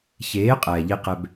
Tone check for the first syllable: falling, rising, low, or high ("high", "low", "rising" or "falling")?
rising